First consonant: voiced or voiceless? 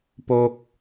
voiceless